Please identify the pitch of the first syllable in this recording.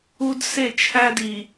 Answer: high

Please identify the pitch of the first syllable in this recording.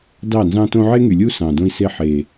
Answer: falling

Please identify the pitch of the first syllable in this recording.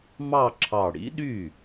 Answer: falling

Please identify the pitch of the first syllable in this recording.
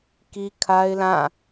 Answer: high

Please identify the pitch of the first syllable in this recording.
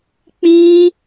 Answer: high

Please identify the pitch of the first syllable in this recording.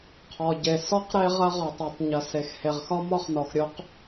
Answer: low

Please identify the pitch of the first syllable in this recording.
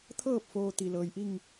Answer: falling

